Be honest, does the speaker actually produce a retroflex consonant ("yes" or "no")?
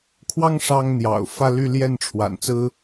yes